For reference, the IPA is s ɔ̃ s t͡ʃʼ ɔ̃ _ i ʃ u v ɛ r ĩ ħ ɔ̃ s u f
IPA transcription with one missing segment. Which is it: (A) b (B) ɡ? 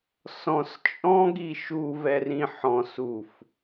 B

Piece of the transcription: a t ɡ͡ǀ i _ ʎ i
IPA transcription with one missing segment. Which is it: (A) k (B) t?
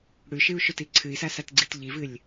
B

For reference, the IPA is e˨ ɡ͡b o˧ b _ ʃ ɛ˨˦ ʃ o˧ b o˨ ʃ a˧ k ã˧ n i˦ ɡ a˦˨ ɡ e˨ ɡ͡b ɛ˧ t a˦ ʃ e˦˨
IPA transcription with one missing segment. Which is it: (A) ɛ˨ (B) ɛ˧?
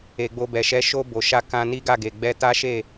A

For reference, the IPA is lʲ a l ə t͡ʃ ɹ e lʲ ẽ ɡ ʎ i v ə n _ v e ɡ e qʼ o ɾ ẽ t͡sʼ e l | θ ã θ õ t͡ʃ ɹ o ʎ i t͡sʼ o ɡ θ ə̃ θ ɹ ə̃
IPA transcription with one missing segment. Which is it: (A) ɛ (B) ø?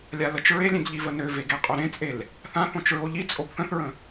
B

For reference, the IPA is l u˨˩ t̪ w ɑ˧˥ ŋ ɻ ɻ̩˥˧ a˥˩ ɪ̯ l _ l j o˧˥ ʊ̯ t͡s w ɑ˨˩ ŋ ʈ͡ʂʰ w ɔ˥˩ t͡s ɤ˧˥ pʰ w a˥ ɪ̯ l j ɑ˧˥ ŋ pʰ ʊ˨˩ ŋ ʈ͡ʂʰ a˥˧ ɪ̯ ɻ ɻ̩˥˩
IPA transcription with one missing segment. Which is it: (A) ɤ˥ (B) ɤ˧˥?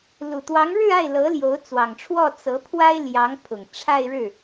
B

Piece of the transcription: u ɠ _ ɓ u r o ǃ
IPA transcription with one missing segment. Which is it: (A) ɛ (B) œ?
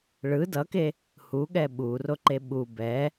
A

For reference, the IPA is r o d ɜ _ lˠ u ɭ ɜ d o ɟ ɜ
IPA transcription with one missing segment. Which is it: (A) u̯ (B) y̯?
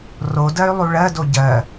B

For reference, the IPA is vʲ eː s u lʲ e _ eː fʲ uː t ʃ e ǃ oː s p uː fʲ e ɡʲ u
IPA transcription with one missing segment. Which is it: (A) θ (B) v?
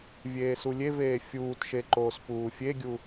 B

